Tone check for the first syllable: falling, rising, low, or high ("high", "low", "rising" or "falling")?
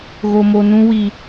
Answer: low